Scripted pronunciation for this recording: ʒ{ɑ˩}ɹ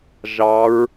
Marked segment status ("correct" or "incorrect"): incorrect